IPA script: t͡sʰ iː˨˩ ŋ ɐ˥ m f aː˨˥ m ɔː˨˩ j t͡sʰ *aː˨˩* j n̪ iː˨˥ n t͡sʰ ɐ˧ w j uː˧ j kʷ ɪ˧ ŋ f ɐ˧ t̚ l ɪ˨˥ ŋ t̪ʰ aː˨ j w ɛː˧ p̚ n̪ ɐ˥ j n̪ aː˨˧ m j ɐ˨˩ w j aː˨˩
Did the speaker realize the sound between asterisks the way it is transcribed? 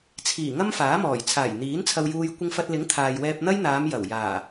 yes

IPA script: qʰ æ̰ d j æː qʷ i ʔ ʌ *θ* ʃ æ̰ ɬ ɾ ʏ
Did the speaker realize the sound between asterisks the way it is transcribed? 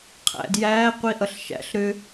no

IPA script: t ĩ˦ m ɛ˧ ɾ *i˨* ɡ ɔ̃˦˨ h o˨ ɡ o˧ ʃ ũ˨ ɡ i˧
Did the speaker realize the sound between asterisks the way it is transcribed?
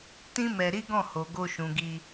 no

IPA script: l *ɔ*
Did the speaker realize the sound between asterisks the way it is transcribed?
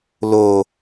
no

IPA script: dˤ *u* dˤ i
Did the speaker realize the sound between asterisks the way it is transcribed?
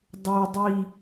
yes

